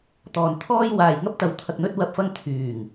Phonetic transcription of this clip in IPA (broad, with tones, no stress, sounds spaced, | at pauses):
t̪ ɔː˨ n t̪ʰ ɔː˥ j w aː˨ j ŋ ɐ˥ p̚ t̪ ɐ˨ w t̪ʰ ɐ˨ k̚ n̪ ɵ˧ t̚ w ɐ˨ p̚ f ɐ˧ ŋ t̪ʰ yː˨˩ ŋ